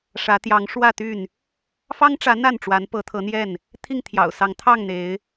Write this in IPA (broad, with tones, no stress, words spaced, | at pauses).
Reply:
ʂä˨˦t̪jɑ˨˦ŋ ʂwä˥˨t̪y˥˨n | fɑ˦ŋʈ͡ʂä˨˦ n̪a˥˨nʈ͡ʂwa˨˦npɤ˨˦ t̪ʰɤ˨˦n̪jɛ˥˨n | t̪ʰi˥˨ŋt̪ʰjɑ̰˨˩ʊ̯sɑ˨˦ŋ t̪ʰɑ˥˨ŋn̪e˨˦ɪ̯